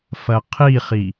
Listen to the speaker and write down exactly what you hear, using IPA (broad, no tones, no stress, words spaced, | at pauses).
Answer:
fɐqʰiχi